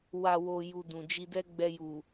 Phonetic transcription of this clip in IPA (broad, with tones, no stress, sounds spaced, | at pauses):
w a˨ w o˨ j u˧ d ũ˨ d͡ʒ i˧ d ɛ˦ ɡ͡b ɛ˧ j u˨